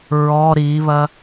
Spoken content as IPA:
ɹ ɔ ɾ i β ɐ

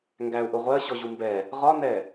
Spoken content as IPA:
ŋ ɡ æ u̯ ʔ ʊ ʁʷ ɜ ɕ ɔ ʑ u m b ɛ | ʁ ɒ n ɛ

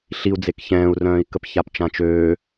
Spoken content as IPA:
ɬ i u̯ d͡z e k ç ɛ̃ː u̯ r œ̃ː i̯ k ə p ç a p t͡ʃ ã t͡ʃ øː

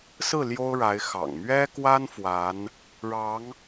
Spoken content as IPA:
s ɹ̩˥˩ l j o˥ ʊ̯ ɻ a˧˥ ɪ̯ x ɑ̰˨˩ ŋ m ɥ ɛ˥ k w a˥ n f w a˧˥ n | ɻ ɑ˧˥ ŋ

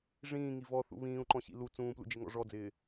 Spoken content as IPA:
ʐ ĩː ŋ i v ɔ θ ṵ β ĩː u̯ ǃ ɔ̃ ɕ ḭ l u t͡s ũː p l ṵ d͡ʒ ɪ ŋ ɔ̰ ʐ ɔ d͡z ɪː

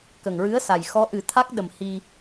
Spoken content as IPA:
k ə˨˩ ŋ ɹ ɨ˧˥ ə̯ s a˨˩ j x ɔ˧˥ ʔ ɨ˨˩˦ t̪ʰ a˦˥ k̚ ɗ ə˨˩ m h i˧

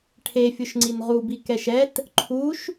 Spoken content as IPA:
ʈʰ e fʲ ʊ ʃ ŋ͡ǀ i n ʁ u b i k ɛ ʃ ɛ t | ǃʰ u ʃ

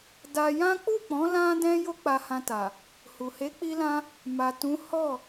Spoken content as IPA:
d a˧ j ã˦ k͡p u˦˨ k͡p ɔ̃˨˦ l ã˦ d ɛ̃˦ j o˦ k͡p a˧ h ã˧ t a˨ | h u˨ h e˨˦ k͡p i˧ l ã˧ | m a˨ t ũ˨˦ h ɔ˦˨

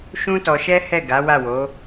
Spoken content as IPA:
ʃ ũ˦ t ɔ˧ ʃ ɛ˦ h ɛ˦˨ ɡ a˨˦ w a˦˨ w o˨˦

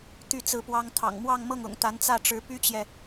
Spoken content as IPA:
t̪ y˥˧ t͡s ɹ̩˥˩ p w ɑ˥ ŋ t̪ʰ ɑ̰˨˩ ŋ m w ɑ˥˧ ŋ m ɤ˥˩ ŋ ʊ̰˨˩ ŋ t̪ a˧˥ n t͡s ä˥˩ ʈ͡ʂ ɻ̩˧˥ p y˥ t͡ɕ j ɛ˨

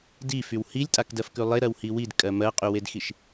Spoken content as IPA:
d i f y w h i lʲ tʼ a k d ɜ f k ʉ lˠ e ɾ ɜ w h i w i d kʼ ɜ m ɜ qʼ y w e d x i ʃ

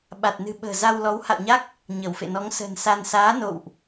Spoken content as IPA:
ɓ a˨˩ t̚ n ɨ̤˨˩ ɓ ə̤ː˨˩ z a˧ w l ɔ˨˦ w h a̰˧˨ w ɲ a˦˥ k̚ | ɲ ə˧˩ w f ḛ˧˨ n ɔ˨˦ ŋ s ə̤˨˩ n s a˧ n s aː˨˦ n o̰˧˨ w ʔ

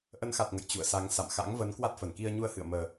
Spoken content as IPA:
ʔ ə˨˦ n x a˨˩ t̚ ŋ ə̰˧˨ j t͡ɕ ṵ˧˨ ə̯ s a˨˦ ŋ s a̰˧˨ m x a̰˧˥ ŋ v ə˨˦ n k w a˦˥ t̚ f ə˧˩ n k i˧ ə̯ ɲ u˧ ə̯ h ɨ̰˧˨ ə̯ m əː˨˩

